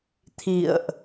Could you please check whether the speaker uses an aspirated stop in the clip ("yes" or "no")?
yes